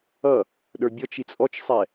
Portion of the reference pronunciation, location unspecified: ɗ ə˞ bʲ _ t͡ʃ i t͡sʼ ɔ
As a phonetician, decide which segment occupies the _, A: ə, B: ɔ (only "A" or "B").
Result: B